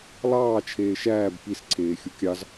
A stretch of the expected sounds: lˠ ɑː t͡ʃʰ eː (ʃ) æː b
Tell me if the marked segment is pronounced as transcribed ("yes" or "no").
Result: yes